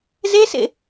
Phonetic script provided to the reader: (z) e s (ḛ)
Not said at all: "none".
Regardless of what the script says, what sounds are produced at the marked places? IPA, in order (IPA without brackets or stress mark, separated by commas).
z, ḛ